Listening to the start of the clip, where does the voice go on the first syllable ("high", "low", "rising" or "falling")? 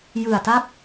low